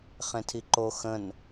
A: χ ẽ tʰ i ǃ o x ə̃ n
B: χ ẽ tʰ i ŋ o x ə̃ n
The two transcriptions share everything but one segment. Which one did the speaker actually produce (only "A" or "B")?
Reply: A